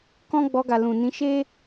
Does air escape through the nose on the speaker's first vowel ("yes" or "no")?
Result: yes